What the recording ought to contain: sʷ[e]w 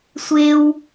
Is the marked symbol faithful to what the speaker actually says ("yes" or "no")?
yes